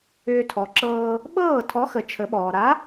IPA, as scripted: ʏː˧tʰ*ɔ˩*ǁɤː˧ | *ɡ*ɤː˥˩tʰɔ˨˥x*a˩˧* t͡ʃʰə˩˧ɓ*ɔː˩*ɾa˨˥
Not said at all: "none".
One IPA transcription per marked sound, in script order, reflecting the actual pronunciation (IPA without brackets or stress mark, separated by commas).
ɔ˩˧, ɓ, ə˩˧, ɔː˩